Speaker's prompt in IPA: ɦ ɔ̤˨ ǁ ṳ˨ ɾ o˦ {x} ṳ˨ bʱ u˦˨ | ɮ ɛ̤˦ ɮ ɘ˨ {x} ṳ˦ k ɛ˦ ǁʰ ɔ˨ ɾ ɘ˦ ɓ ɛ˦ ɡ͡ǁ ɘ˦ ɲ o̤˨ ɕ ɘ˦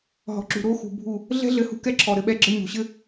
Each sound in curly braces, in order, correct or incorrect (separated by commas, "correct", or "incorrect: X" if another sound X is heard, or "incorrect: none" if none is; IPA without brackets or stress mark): correct, incorrect: h